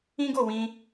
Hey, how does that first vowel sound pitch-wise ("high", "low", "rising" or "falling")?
high